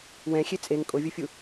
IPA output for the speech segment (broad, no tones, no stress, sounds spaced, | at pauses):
w ɛ̃ xʲ e t͡sʼ e ŋ kʼ o vʲ u fʲ u